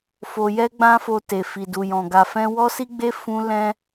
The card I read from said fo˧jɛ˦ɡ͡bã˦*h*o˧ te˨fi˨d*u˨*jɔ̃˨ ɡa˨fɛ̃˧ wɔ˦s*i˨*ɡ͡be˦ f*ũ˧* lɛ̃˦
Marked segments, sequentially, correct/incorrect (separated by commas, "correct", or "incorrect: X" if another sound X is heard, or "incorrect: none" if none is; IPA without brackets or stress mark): incorrect: f, correct, incorrect: i˦, incorrect: ũ˦